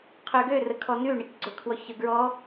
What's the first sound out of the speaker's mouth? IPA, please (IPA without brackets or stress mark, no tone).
qʰ